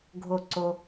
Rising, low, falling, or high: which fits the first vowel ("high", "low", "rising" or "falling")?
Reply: falling